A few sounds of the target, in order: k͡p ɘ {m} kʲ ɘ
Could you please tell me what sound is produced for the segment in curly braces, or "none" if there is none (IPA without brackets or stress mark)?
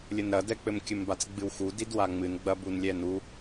m